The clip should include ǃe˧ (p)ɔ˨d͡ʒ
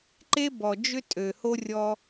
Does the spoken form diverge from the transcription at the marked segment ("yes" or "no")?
yes